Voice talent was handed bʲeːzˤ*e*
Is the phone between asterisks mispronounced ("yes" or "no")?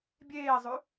yes